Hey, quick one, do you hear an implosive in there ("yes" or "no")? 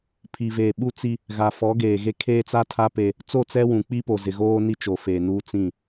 yes